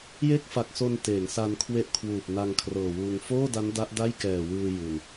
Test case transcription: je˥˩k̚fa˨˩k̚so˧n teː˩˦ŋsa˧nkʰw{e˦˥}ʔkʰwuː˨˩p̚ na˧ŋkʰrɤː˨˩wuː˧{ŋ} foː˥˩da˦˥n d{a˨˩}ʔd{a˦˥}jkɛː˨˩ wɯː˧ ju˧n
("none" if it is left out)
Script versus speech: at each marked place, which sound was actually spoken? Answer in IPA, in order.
e˦˥, ŋ, a˦˥, a˥˩

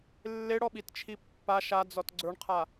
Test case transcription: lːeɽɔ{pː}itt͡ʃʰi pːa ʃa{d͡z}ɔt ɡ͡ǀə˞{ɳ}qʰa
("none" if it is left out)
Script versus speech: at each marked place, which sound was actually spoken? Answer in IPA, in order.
ɓ, d͡z, ɳ

